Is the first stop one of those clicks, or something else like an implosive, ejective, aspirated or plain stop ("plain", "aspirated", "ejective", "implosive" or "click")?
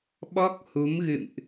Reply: implosive